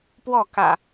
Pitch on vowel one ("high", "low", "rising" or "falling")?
falling